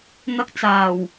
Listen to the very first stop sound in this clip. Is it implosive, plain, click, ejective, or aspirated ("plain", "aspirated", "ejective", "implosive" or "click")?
plain